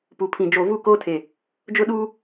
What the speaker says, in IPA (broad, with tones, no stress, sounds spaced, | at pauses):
p u˨ pʰ ĩ˨ d͡ʒ o˨ v u˦˨ k oː˦ tʰ e˨ | d͡ʒ ʊ˦ ɗ uː˦